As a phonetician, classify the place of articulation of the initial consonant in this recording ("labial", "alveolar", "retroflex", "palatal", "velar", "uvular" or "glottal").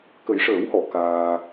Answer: velar